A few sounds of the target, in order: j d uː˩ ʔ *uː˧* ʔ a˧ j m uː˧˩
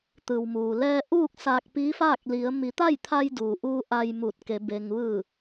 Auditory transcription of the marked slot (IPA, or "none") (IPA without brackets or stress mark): uː˧